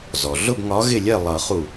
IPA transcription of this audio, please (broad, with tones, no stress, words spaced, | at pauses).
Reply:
zɔ˩ ɮʊ˥˩bŋɒ˨˥ ɣɪ˥˩lʲɛ˥˩ lˠʌ˨˩˦χu˧˩